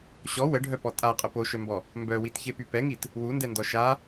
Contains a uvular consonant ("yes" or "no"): yes